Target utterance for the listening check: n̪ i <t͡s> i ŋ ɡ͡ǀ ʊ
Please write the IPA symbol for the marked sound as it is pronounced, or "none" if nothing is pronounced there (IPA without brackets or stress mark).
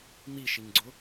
ʃ